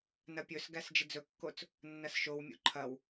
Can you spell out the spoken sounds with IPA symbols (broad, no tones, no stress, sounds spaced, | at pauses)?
n ɐ pʲ ɵ s ɡ æ s d͡ʒ ɪ d͡z ɵ kː o t͡s | nː ɐ s ʃ o w mʲ ṵ ǃʰ ɐ w